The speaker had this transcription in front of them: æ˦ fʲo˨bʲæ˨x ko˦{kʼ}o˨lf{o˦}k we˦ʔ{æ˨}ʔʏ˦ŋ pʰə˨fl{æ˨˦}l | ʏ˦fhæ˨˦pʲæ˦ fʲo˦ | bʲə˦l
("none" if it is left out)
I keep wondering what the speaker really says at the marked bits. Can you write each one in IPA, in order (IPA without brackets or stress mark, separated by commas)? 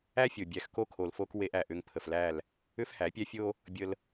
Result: kʰ, o˦, æ˨, æ˦˨